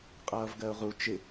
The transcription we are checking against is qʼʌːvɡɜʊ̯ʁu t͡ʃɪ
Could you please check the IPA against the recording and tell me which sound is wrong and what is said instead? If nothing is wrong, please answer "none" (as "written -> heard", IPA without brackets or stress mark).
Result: none